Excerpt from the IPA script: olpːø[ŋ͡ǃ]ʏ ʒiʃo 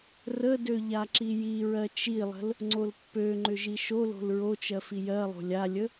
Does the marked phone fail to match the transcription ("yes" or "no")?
no